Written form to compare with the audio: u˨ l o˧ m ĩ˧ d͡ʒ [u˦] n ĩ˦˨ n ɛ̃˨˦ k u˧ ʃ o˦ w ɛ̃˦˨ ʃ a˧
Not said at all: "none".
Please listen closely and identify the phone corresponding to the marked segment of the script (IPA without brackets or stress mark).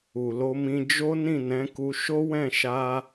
o˦